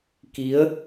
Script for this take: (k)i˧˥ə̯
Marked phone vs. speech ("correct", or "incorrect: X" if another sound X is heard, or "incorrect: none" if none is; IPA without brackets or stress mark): correct